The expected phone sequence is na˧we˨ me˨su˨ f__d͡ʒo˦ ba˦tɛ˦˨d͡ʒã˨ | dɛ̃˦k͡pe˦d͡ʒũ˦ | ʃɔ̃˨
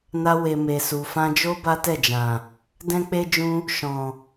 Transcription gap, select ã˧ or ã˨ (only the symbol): ã˧